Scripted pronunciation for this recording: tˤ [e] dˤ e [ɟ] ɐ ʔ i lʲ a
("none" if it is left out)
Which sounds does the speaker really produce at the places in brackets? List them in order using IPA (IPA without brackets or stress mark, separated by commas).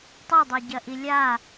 e, ɟ